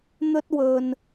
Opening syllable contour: high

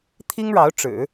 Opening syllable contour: high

